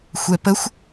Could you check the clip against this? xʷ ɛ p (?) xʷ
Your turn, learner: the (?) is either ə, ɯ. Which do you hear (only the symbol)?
ə